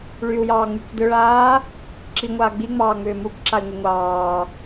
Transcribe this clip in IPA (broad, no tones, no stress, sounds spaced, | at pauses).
ɭ y u̯ j ɑː ŋ͡m y k d ʏ ɭ aː | ǁ i ŋʷ aː ɡ͡b i ŋ͡m ɑː ŋ͡m ʏː m u k ǁ a i̯ ŋʷ i ŋʷ ɑː